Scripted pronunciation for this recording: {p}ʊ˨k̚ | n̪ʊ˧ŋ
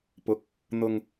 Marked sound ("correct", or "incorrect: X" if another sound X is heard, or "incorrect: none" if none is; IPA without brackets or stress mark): correct